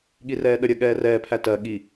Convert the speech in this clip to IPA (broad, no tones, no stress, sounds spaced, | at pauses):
ɠ i r ɛː ɗ ə ɾʲ ɜ ɠ ɛː r ɛː pʰ æ t ɜ ɠ i